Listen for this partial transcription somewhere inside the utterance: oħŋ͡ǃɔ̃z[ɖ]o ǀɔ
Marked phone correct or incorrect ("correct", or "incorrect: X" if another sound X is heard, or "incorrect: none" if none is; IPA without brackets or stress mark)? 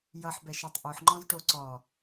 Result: incorrect: ʈ